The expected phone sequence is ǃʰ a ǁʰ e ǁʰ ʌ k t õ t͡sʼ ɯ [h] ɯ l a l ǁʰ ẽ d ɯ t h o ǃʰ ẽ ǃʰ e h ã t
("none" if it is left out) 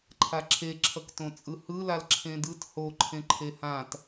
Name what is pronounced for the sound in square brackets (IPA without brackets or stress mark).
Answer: h